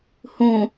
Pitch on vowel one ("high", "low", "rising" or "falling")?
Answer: low